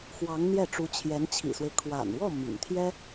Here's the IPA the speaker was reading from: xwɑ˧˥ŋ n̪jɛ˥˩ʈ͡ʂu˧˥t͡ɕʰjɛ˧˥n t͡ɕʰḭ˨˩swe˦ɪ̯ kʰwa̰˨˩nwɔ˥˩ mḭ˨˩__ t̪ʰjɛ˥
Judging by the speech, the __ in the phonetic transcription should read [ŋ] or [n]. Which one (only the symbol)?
ŋ